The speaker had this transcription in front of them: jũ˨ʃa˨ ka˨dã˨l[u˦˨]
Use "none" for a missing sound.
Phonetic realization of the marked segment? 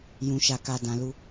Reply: u˧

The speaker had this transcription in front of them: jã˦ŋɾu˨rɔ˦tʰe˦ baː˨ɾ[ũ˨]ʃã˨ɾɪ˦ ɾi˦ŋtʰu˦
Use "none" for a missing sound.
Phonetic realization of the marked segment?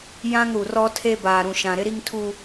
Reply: ũ˨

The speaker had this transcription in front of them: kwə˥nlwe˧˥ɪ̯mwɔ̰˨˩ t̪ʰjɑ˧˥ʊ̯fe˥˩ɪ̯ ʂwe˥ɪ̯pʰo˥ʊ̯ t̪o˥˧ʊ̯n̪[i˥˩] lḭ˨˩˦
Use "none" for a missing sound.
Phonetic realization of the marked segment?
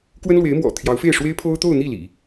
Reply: i˥˩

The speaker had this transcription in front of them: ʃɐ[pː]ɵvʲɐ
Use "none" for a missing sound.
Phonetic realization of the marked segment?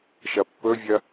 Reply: pː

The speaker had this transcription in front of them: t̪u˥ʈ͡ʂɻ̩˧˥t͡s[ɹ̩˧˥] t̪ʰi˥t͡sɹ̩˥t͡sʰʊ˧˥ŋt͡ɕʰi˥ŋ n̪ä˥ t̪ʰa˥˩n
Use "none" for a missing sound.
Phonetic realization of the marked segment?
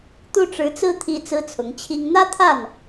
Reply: ɹ̩˥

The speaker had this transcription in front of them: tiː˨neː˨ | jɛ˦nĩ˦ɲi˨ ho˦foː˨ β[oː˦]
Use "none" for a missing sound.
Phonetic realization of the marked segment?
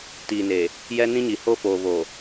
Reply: oː˨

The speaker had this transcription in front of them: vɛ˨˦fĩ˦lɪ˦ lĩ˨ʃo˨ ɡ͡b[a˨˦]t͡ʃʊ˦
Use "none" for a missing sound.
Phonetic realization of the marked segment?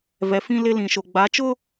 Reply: a˨˦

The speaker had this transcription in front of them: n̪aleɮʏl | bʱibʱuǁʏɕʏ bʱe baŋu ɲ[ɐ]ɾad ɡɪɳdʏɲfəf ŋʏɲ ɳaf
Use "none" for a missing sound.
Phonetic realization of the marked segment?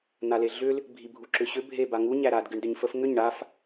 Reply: æ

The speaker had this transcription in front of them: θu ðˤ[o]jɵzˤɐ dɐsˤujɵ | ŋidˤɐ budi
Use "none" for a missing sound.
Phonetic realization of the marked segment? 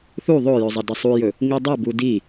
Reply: o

